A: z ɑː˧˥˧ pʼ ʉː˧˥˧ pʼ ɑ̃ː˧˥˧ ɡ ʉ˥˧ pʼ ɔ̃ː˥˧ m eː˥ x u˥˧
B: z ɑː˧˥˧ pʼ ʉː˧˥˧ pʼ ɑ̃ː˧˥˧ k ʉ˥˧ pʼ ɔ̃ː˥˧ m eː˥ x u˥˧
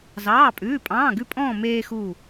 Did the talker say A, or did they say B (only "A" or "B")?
A